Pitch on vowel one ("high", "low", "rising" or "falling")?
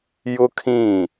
high